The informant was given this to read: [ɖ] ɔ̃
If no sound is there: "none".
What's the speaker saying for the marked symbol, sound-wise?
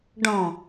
ɖ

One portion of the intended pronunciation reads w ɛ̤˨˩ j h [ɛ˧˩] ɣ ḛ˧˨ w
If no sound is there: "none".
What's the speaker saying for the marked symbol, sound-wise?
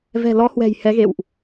ɛ˨˦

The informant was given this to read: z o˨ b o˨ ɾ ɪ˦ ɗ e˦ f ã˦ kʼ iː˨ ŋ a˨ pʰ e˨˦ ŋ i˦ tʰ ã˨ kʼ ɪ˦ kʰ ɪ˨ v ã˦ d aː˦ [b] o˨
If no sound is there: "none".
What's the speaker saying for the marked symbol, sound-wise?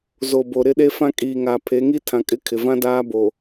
b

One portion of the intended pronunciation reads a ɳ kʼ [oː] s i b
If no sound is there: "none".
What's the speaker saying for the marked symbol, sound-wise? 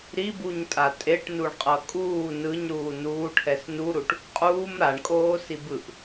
oː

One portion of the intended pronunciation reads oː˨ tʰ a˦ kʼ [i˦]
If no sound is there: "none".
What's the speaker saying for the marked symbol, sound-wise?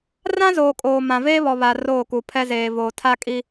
i˦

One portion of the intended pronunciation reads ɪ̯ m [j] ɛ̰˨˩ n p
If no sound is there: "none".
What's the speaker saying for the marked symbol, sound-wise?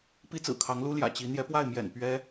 j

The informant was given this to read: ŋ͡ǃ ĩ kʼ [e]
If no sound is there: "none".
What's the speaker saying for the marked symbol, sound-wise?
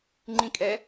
ɛ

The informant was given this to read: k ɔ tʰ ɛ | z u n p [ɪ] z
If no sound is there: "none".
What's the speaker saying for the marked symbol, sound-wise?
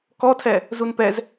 ɛ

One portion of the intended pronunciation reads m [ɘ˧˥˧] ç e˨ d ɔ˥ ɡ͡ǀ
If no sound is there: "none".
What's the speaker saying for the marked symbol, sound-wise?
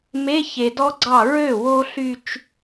e˧˥˧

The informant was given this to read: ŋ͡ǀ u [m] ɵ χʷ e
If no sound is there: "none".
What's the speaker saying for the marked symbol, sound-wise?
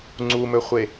m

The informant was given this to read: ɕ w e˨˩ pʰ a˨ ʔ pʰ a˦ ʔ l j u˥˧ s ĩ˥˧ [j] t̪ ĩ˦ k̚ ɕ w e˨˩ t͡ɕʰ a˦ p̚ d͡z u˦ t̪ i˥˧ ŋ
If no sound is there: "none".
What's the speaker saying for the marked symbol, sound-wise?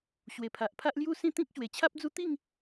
none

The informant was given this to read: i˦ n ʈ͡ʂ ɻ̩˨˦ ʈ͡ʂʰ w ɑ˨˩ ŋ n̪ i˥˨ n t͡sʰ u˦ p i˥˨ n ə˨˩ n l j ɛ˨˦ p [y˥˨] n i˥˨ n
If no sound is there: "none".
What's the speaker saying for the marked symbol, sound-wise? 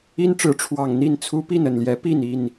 i˥˨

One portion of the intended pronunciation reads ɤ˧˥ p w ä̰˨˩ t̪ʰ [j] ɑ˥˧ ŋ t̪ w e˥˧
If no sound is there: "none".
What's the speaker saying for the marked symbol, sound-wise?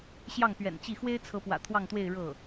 w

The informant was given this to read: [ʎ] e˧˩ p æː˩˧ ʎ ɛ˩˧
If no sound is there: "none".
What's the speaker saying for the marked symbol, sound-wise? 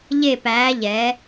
ʎ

